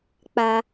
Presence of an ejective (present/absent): absent